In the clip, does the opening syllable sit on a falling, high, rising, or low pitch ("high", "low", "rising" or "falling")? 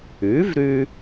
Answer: rising